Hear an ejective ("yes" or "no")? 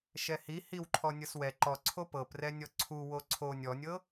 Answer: no